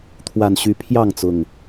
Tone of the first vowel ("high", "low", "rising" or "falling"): low